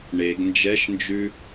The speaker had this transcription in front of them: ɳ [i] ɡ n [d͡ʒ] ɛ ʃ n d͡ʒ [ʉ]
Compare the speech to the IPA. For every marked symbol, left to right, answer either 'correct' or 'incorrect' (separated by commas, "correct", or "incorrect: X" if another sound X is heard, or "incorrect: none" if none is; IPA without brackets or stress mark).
incorrect: e, correct, correct